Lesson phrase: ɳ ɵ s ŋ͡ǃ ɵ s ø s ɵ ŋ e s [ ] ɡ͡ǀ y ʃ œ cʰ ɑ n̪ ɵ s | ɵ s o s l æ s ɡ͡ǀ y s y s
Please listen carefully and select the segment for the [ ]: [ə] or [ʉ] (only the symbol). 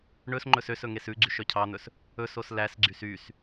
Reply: ʉ